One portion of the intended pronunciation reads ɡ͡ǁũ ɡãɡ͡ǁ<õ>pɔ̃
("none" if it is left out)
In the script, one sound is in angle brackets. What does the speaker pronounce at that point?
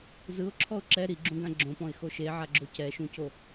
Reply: õ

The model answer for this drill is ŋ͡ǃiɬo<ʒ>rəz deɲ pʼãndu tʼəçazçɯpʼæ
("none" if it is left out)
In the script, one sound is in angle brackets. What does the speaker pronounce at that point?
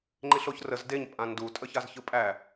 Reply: ç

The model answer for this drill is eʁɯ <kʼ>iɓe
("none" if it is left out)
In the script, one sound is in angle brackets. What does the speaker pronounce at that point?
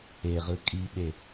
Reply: kʼ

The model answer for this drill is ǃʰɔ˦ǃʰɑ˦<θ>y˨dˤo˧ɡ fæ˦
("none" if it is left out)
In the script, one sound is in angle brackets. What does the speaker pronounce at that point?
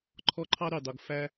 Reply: ɾ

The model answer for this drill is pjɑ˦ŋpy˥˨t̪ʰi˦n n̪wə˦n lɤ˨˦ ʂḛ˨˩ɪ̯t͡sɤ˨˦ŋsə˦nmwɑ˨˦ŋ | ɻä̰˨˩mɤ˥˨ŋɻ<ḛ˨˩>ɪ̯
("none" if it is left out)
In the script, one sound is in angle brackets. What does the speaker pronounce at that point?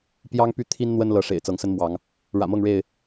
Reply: e˥˨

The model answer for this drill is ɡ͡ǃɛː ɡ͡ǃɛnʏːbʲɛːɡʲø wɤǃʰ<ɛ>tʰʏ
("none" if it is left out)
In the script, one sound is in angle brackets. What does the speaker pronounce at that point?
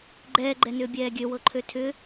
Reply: ø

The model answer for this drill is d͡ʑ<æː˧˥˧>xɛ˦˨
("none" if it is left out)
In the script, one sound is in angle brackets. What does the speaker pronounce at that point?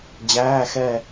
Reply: æː˧˥˧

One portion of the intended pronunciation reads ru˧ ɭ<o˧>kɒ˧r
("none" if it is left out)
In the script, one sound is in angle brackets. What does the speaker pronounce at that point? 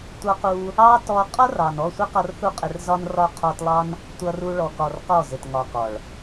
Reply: ɔ˧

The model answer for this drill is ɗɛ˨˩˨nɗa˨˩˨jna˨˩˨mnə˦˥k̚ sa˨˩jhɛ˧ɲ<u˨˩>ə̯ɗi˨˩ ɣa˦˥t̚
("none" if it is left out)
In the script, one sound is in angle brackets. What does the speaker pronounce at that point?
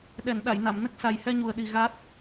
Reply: u˨˩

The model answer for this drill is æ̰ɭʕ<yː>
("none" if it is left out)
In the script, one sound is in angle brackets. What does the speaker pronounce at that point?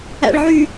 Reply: yː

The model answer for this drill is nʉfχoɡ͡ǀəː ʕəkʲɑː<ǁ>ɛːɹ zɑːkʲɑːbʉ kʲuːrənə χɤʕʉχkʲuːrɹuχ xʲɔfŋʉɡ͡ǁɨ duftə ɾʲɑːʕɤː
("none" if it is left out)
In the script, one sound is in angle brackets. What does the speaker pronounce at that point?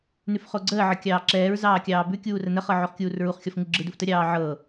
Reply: ǁ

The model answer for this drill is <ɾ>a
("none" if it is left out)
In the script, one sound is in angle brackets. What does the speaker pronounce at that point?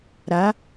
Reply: ɾ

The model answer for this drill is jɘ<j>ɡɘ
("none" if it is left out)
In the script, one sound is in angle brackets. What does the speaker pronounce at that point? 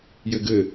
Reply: none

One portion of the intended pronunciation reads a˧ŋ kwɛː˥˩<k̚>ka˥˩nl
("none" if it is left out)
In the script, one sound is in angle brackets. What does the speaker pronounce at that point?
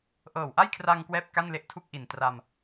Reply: p̚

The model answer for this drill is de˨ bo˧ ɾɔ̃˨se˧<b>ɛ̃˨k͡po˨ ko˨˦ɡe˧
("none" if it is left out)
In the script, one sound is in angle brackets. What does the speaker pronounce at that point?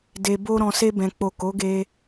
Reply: b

